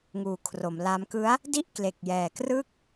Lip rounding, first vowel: rounded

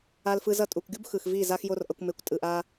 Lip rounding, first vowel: unrounded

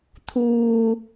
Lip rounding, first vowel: rounded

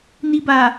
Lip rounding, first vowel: unrounded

